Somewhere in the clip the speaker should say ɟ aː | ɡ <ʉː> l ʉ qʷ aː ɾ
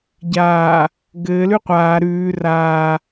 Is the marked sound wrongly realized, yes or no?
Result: yes